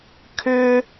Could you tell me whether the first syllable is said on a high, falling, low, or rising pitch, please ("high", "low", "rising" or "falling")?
high